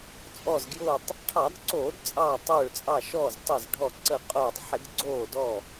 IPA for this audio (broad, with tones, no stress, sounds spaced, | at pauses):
t͡sʼ ɔ˧˩ z ɡ j ʊː˧˩ tˤ | ʈʰ ɑ˧˩˧ d ǀ oː˧˩˧ d t͡sʼ ɑː˧˩ tˤ ʊː˧˩ ɭ t͡sʼ ɑ˧˩ ʃ ɔː˧˩ z tˤ ə˧˩ z ɖʱ ɔ˧˩ ǀ ə˧˩ qʼ ʊː˧˩ tˤ ħ ɪ˧˩˧ d ɡ͡ǀ oː˧˩ d ɔ˧˩